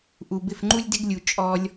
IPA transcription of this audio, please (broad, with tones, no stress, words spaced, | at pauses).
ʔu˧bɪ˦˨fŋ͡ǃu˦lʲ dɪ˧ɡlʲu˨ t͡ʃʼɔ˧lʲ